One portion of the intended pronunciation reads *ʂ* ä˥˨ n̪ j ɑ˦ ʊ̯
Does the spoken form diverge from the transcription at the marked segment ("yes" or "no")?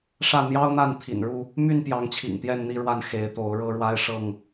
no